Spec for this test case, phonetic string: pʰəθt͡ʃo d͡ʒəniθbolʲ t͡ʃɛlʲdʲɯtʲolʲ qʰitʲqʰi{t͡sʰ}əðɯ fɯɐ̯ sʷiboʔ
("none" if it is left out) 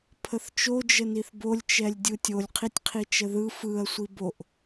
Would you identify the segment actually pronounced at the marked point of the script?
t͡ʃ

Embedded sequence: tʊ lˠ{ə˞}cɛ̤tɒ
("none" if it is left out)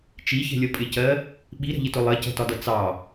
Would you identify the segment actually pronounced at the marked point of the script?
ɜ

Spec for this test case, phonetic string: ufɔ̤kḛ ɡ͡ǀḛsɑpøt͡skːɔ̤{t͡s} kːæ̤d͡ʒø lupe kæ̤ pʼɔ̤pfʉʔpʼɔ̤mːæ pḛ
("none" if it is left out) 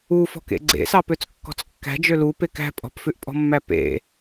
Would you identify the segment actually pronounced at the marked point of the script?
t͡s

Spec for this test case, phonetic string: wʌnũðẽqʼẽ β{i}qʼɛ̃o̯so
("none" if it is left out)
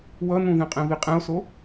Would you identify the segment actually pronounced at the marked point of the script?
i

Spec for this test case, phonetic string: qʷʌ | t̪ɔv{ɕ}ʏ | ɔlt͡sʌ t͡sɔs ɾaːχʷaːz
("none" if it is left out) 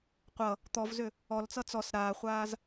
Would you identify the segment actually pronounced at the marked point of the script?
z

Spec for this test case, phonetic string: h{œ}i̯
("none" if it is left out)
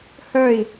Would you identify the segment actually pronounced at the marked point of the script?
œ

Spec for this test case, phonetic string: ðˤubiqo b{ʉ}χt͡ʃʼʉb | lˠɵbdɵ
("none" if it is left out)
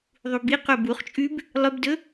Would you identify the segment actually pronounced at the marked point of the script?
u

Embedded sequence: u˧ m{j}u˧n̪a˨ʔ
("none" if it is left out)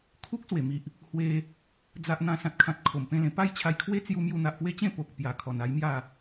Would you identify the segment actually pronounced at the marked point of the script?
j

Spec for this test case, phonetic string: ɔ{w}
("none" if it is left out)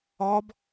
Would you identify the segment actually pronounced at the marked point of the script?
b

